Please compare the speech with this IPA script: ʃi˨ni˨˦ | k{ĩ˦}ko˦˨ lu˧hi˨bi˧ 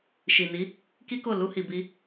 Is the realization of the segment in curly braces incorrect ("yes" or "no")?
yes